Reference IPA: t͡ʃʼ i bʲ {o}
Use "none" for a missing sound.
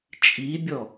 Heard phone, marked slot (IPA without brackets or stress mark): ɔ